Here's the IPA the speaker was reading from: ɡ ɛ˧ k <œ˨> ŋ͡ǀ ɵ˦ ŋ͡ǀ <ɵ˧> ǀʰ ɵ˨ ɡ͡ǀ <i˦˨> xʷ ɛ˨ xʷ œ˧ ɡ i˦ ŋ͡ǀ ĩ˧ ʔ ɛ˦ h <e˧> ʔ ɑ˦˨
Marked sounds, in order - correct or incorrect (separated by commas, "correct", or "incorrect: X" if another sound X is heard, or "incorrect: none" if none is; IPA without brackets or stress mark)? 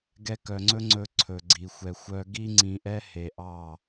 correct, correct, incorrect: i˨, correct